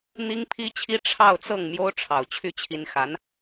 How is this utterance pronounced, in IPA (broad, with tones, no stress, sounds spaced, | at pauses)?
n̪ i˥ ŋ pʰ i˥ t͡ɕʰ i˥ ʈ͡ʂʰ ɑ˥˧ ʊ̯ t͡s ɤ˥˩ ŋ m j o˥ ʊ̯ ʈ͡ʂʰ ɑ˨˩ ʊ̯ t͡ɕʰ y˥˩ t͡ɕʰ i˧˥ n x a˧˥ n